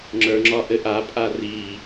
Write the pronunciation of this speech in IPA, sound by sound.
ŋ͡ǁ ə˞ ŋ͡ǁ ɒ ʔ ɘ ʔ a pʼ a r i

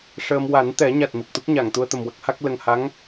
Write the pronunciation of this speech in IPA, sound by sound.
ʂ əː˧ m w a˨˩˦ n t̪ ɛ˨˩˦ ɲ a˨˩ t̚ m i˨˩ k̚ t̪ u˦˥ k̚ ɲ a˨˩˨ ŋ t̪ u˧ ə̯ t̪ ə˨˩ m w ə˦˥ k̚ h a˦˥ k̚ l ə˨˩ ŋ h a˧˥ ŋ

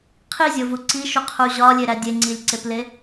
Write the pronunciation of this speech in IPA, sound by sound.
qʰ i zʲ o v u ǀ i ʃ u qʰ u ʑ ɒ lʲ e ɾ æ dʲ e ŋ͡ǀ i lʲ ǀ e p l e

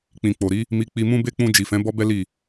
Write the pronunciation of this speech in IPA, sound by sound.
k͡p ĩ˨ k͡p o˨ ɾ i˨˦ | m i˧ k͡p i˧ m ũ˦ b e˦ k͡p ũ˧ d͡ʒ i˨ f ɛ̃˨˦ b ɔ˦ b ɛ˦ l i˦˨

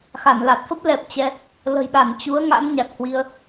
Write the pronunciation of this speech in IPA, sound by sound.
x a˧˩ n l a˨˩ t̚ f ə˦˥ p̚ l ɛ˨˩ p̚ t͡ɕ ɛ˧ | l ə̤˨˩ j ɗ a˧˩ n t͡ɕ u˨˦ ə̯ ŋ a̰˧˥ n ɲ a˨˩ k̚ h w i˧ ə̯

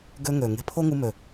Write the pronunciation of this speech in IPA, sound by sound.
ɡ ø˦ ŋ ø˨ ŋ e̤˧ pʰ o˦ ŋ u˧ m ø˨

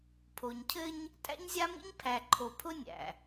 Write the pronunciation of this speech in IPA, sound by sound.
pʰ o˨ ɲ cʰ ɘ˦ ɲ | tʼ æ̰˦ ɲ zʲ a˦ m ḭ˦ ɲ pʰ æ˨ ǃʰ o˨ pʰ ʊ˦ nʲ æ̰˨

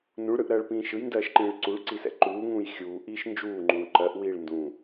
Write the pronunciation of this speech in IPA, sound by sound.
n ũ ɭ ɾ ɯ ʔ ɾ ɜː ɭ p ĩː ʃ ɯ j n d ɜː ʃ ǃ ĩː ɭ ǀ u ɭ ǀ i s ɛ̰ ǃ uː ŋ ũː j xʲ uː ʔ iː ʃ n d͡ʒ uː ŋ͡ǃ ũː ǃ ɜ ʔ w iː ɭ n d ũː

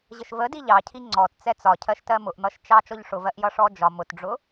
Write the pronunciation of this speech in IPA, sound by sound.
ʑ ə ʃ v ə d i ʎ ɑ cʰ i ŋ͡ǀ ɔ t t͡s ɛ t͡s ɒ cʰ ɜ ʃ t ɜ m ʊ ʔ n̪ ʌ ʃ t͡ʃ ɑ t͡ʃ ɔ ʎ ʂ ʊ v ɜ ʔ j ʌ ʂ ɔ d͡ʒ ɒ m ʊ t ɖ͡ʐ ʊ

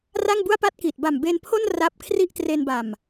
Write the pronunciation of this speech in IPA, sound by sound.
r a˥˩ ŋ b u˥˩ a̯ p a˥˩ t̚ k i˨˩ t̚ b a˨˩ m b e˧ n pʰ o˥˩ n r a˦˥ p̚ kʰ r i˥˩ ʔ t r e˧ n b a˨˩ m

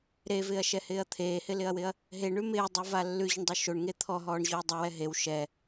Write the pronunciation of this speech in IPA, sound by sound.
ɾ e v ɪː ɐ̯ ʃ ɛ h ɪː ɐ̯ t̪ʰ eː h ɪ l ɪ ɐ̯ w ɪ ɐ̯ | ɦ e ɳ ʉ m ɪː dˤ u v a lː ʉ ʑ ʊ ɳ dˤ u ʃ o ɳ ŋ e t̪ʰ ɔ ɦ ɔː ɳ ʑ o ɐ̯ dˤ ɪ w ɛ ɦ e w ʃ ɛ

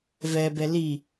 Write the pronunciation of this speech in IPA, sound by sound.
v ɛ b ɛ l i

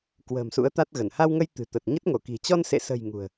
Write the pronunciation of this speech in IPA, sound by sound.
k w ə̤ː˨˩ m s ṵ˧˥ ə̯ t̪ a˦˥ t̚ ɣ ə˧˩ n h a˧ w ŋ ə˧ j t̪ ɨ̤˨˩ t̪ ə˨˩ t̚ ɲ ə˦˥ t̚ ŋ o˧˩ k i̤˨˩ t͡ɕ ɔ˧ n s ḛ˧˨ s ə̤˨˩ j ŋ ṳ˨˩ ə̯

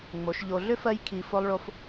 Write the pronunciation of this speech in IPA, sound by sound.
ŋ͡m o˨˦ ʃ ʎ o˧ ɮ ʏ˦ f ɜ˧ j kʰ i˧ f o˦ lˠ ɭ o˦ f

